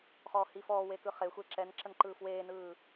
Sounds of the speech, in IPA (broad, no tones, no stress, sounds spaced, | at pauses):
χ ɔː h i f ɔː w e k ɯ χ e xʷ e ǁ ɛ n ǁ ə n ǃ ɯː f w eː n ɯː